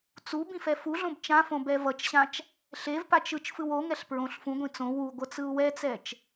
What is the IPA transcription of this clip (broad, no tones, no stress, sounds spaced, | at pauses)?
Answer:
t͡s u b ĩ f ɛ f u ɮ õ b t͡ʃ ã f õ b ɛ v ʌ t͡ʃ ɕ ã t͡ʃ | ɬ e v p a t͡ʃ ɯ t͡ʃ f ɯ w o ŋ ɛ ɬ p ɹ õ ɬ f ũ ɡʷ ĩ t͡s õ w u ɡʷ ʌ t͡s ɯ u̯ w ɛ t͡s ɛ t͡ʃ